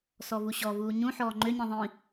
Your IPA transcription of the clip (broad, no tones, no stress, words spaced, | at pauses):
sɔvuɕɔvuː ɲũħɔː ŋ͡ǃøɲĩ ðˤĩ